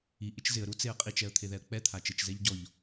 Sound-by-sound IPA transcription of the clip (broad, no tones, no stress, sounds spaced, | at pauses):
i ʔ ɪ t͡ʃ z ɪ ə̯ ɾ u t͡s e ə̯ qʼ i t͡ʃ ɛ ə̯ t̪ʰ e ð ɛ ə̯ k͡p ɛ t̪ʰ a t͡ʃ ɪ t͡ʃ z ɛ ʎ ɟ ɔ ʎ